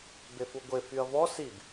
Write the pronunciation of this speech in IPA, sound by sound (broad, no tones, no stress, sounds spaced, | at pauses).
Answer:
b e f u ɡʷ e f y ɐ̯ v ɔ s i b